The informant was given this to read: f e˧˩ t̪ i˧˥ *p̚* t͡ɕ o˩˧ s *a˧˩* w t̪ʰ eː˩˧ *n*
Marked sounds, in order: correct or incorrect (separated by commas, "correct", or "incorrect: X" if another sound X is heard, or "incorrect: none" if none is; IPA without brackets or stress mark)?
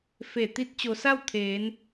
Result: incorrect: t̚, incorrect: a˥˨, correct